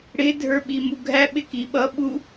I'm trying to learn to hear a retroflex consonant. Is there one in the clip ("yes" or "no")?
yes